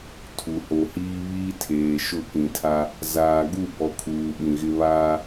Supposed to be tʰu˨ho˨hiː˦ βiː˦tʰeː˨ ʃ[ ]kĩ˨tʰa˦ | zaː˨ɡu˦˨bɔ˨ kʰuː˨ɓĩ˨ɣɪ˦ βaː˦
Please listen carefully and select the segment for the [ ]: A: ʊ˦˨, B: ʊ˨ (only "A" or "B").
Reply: A